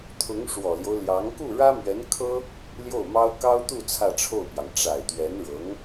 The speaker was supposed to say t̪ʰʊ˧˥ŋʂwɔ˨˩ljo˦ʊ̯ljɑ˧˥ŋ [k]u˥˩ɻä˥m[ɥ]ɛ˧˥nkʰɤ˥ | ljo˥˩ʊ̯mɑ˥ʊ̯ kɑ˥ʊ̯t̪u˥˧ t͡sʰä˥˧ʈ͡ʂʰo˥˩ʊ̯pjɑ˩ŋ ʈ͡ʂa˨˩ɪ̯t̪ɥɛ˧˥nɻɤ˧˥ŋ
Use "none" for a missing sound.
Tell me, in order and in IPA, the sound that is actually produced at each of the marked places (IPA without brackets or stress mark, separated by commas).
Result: k, ɥ